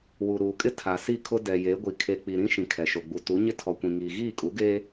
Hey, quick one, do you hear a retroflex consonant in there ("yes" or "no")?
no